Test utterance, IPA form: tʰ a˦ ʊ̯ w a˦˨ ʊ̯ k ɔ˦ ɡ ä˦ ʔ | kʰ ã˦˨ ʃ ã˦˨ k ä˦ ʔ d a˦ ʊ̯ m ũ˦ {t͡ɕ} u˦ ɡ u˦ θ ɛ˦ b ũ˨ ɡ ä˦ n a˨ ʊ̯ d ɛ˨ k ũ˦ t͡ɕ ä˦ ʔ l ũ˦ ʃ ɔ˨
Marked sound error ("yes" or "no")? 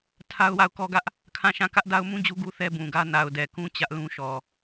yes